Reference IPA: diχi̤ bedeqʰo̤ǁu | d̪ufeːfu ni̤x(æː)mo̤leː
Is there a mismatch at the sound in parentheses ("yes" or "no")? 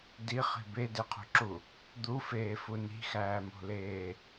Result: no